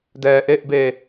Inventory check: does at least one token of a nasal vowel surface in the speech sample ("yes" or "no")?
no